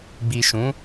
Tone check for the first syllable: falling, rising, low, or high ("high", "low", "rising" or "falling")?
low